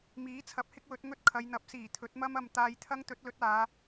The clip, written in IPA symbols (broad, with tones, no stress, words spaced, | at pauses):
miː˨˥t͡sʰɐ˨˥p̚ hɪ˥k̚wɵ˨˥t̚ŋɵ˥t̚ kʰɐ˨˧jn̪ɐ˨˥p̚siː˨˩ t̪ʰɵ˨˥t̚mɐ˥m ɐ˨m t̪aː˧jt̪ʰɐ˥ŋt̪ɵ˨˥t̚lɵ˨˥t̚ aː˨˧